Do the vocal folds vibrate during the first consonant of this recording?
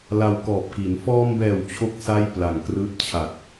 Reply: yes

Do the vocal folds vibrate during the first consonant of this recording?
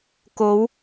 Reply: no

